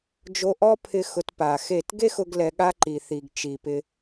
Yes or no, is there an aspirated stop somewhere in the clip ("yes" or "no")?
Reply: yes